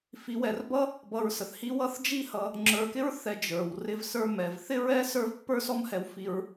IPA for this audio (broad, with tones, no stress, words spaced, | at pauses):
fi˧wɛ˧rbʌ˥ | bʌ˧ɹsə˩θhi˥wʌ˥θ d͡ʒi˥hʌ˧ | ŋ͡ǁə˞˧kɪ˥ɹ θɛ˧ d͡ʒə˞˩w rɪ˧vsə˞˧ mɛ˩vθɪ˥ɹɛ˥ sə˞˥vpːə˞˥sɔ˥mhɛ˧w fi˧ɹ